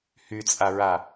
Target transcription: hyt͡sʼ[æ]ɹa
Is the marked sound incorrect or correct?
incorrect